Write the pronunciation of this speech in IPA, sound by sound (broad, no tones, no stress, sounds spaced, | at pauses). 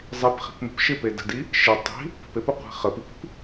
zˤ i p χ i̤ p n ə̤ p ʃ ɪ p e d ə̤ d i | ʃ ɪ tˤ i̤ | p ə̤ p e p ʊ qʷ i̤ χ ə p i p i̤ p